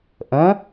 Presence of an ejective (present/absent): absent